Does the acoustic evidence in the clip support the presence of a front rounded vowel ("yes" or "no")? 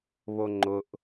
no